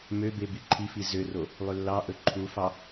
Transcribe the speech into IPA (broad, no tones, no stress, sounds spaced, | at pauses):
m ø b e b i ǃʰ i f i z ø r o | lˠ ø lː ɑ ʔ ɵ ǃʰ u f ɑ